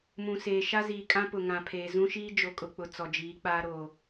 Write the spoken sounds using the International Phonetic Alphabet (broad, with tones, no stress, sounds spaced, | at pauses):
m ũ˨ s eː˨ ʃ a˦ z iː˨ kʼ ã˦ p ʊ˨ ŋ ã˨ pʰ eː˨ z ũ˦ ʃ iː˦ d͡ʒ o˨ kʼ ʊ˨ k͡p ʊ˨ t͡s ɔ˨ d͡ʒ iː˨˦ k͡p aː˦ ɾ oː˨